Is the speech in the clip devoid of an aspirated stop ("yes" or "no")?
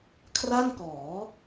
no